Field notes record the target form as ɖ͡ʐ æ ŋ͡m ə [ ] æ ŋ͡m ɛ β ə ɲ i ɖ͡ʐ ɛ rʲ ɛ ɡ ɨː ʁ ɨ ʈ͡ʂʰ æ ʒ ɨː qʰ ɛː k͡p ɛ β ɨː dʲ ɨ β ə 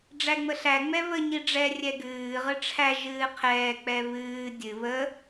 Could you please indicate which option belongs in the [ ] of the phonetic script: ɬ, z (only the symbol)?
ɬ